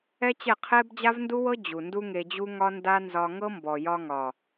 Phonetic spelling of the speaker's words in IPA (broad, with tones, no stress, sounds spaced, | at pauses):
ɛ˦ t͡ɕ ɛ˦˨ qʰ ɛ˦ b d͡ʑ a˦ v n d u˦ w ɤ˦ d͡ʑ u˨ n d u˦ ŋ e˧ d͡ʑ u˦ ŋ ɒ˦ n d a˦ n z ɒ˧ ŋ ɤ˦ m b ɔ˨ j ɒ˧ ŋ ɒ˨